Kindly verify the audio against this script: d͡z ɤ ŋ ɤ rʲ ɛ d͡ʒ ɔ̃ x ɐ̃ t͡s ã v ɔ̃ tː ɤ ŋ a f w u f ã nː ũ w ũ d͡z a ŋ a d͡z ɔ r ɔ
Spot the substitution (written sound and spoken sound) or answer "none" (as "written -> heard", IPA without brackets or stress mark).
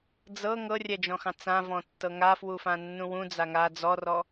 ɐ̃ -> ɑ̃